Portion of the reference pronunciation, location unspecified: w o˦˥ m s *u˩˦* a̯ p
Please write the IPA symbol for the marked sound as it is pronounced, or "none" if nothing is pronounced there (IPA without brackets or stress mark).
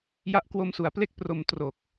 u˩˦